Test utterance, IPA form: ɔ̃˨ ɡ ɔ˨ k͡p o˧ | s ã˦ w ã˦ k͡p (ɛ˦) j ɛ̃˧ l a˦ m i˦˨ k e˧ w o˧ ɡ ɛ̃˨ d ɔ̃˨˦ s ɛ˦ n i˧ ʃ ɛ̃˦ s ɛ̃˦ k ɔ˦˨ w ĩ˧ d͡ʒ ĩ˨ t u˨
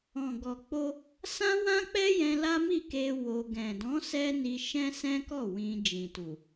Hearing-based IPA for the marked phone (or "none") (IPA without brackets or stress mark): ɛ˦